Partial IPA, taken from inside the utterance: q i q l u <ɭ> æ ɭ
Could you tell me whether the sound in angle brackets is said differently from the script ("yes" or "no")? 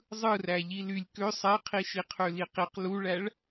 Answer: no